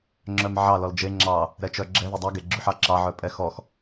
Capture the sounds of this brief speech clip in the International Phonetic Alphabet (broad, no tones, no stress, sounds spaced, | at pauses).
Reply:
ŋ͡ǁ œ m ʕ ɑ l ɔ l d͡ʒ e ŋ͡ǁ ɑ | ɾ ɛ t͡ʃ œ ɡ͡ǁ ɛ ð e dˤ ɑ ɡ e ɡ͡ǁ y ħ ɑ ǁ ɑ ʕ œ pʼ ɛ x ɔ x